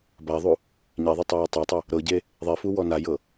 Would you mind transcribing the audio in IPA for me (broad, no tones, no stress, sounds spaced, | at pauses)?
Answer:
b a ðˤ u | ɲ e ðˤ e tˤ a j ɤ tˤ a tˤ u | ɾ ɤ ɟ e | ðˤ ɛ f u w ɔ n a j ɤ